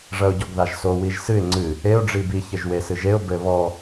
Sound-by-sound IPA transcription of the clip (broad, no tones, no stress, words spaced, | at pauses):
ʐɐʊ̯ɟɔɡðaʒso wiʒsɨɪ̯ ŋ͡ǀɨ | eʊ̯ ɖ͡ʐibi çɘʒwesɨʒeʊ̯ bɘ βɔ